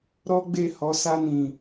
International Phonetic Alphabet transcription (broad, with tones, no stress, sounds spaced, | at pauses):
ɾ ɔ˦ ɡ͡b e˦˨ h ɔ˨˦ s a˧ n ĩ˨